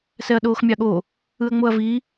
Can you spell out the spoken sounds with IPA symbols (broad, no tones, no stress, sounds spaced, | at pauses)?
s ɛ ɐ̯ ɗ oː x mʲ ɑ ɠ o | ɯ ɐ̯ ŋ͡m o ɐ̯ v i